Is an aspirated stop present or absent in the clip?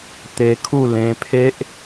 present